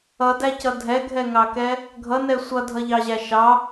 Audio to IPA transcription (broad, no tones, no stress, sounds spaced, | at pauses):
ʌ d æ c ʌ dʱ ɛ ɡʱ ɛ ŋ ɑ k ɛ | ɡʱ ʌ n ɛ sʷ ʌ dʱ ʌ ʎ ɑ ʑ æ ʃ ɑ